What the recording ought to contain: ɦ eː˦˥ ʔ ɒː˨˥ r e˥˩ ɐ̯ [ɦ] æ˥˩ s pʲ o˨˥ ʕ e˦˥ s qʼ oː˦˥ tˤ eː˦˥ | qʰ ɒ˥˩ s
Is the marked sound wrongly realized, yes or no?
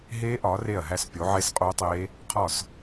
no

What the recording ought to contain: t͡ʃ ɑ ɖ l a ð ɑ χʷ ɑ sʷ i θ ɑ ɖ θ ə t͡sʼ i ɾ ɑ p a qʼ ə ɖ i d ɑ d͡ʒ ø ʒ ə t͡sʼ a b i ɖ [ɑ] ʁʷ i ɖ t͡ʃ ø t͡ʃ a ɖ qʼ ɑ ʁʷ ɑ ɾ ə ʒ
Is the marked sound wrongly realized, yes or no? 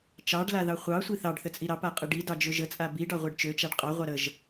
no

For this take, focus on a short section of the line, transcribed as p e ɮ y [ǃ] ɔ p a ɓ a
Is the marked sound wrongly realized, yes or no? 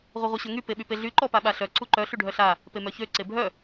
no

